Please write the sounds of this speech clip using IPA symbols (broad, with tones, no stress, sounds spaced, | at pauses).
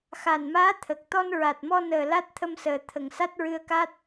x a˨˩ n m aː˧˥ t̪ʰ ə˨˩ k̚ t̪ ɔ˧ n ɹ a˨˩ t̚ m ɔ˧ n əː˨˩ l a˦˥ t̚ t̪ʰ ə˧ m s əː˨˩ t̪ʰ ə˨˩ ŋ s a˦˥ t̚ ɹ ɨ˧ ə̯ k a˦˥ t̚